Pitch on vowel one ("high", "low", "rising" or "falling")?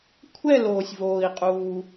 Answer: falling